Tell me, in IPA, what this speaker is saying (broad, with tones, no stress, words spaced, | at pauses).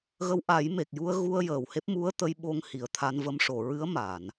ɣə˧˥wʔa˨˩˦jme˨˩k̚ ju˧ə̯ɣu˧ə̯ jəː˨˩whe˦˥p̚ mu˧˥ə̯ t̪ə˧˥j ɓo˧ŋ hi˨˩ə̯t̪ʰa˧nvə˧m ʂo˨˩˨ɹɨ˧˥ə̯ma˨˩˨n